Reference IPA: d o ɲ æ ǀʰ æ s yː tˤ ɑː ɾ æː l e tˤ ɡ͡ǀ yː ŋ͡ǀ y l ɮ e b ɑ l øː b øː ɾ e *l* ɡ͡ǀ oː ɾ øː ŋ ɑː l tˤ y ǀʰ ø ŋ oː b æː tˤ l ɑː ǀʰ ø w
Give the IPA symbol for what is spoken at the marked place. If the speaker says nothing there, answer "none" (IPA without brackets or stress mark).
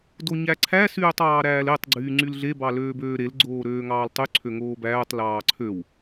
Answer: l